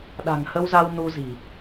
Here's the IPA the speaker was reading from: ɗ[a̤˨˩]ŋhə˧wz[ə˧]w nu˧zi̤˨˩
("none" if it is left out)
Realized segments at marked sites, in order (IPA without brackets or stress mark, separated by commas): a̤˨˩, a˧